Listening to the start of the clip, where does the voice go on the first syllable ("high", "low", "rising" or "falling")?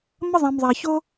high